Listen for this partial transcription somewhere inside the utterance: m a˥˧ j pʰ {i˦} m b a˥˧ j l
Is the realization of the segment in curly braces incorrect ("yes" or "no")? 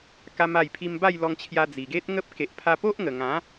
yes